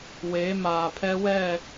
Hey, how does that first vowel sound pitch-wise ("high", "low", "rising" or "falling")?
rising